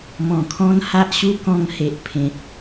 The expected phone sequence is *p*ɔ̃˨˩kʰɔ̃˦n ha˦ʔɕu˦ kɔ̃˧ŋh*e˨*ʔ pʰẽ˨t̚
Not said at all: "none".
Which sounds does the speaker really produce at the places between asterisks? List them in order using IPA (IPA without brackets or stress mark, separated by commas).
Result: m, e˨